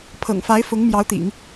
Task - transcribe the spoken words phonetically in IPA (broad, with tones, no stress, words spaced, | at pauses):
pʰɤ̰˨˩ŋfa˧˥ɪ̯fʊ˧˥ŋ mjɑ˧˥ʊ̯t̪ḭ˨˩˦ŋ